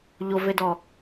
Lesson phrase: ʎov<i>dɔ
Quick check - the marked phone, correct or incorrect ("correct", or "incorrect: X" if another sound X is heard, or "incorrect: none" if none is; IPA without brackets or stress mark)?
incorrect: e